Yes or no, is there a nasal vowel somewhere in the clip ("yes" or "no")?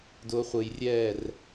no